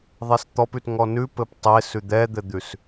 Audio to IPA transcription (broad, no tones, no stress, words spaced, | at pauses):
ðˤest̪ɔpʉt ŋɔnʉ pɘptˤe sʉd̪ɛd̪ɘd̪ʉs